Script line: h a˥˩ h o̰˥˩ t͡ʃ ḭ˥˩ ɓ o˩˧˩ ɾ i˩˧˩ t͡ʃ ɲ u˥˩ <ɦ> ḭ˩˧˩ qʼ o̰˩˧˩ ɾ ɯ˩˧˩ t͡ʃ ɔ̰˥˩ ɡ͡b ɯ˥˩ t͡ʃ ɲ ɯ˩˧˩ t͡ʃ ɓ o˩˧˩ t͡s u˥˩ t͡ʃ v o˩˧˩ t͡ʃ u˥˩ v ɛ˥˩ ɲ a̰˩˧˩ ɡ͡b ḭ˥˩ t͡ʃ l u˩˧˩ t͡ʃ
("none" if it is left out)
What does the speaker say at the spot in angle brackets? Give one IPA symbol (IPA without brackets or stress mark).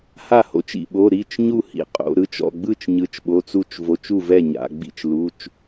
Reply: h